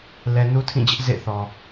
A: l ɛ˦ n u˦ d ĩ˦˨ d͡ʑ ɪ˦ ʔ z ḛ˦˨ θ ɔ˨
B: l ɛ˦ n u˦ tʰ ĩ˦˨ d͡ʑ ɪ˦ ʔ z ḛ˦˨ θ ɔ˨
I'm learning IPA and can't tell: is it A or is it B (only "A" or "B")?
B